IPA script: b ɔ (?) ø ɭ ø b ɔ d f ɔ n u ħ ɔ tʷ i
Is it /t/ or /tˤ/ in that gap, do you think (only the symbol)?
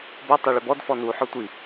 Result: tˤ